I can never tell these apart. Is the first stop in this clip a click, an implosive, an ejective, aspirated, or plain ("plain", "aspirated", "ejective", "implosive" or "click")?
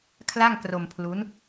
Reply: aspirated